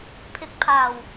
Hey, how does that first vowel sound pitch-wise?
rising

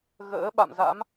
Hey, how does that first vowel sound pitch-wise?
rising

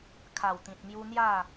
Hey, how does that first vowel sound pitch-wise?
low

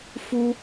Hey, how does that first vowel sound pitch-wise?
high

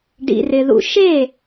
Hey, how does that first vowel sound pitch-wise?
low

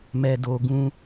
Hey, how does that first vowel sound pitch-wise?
low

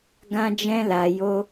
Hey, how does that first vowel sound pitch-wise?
high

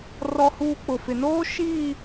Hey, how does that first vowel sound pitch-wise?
high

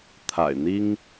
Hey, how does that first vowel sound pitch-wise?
low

